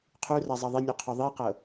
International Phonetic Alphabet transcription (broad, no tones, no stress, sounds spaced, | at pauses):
qʰ u r a zˤ ɑ ðˤ i nʲ u qʰ ɔ ðˤ i q ɤ